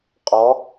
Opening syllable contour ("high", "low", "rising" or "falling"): rising